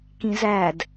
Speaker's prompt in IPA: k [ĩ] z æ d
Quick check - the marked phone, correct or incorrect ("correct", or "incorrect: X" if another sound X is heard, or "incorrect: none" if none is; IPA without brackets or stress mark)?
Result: correct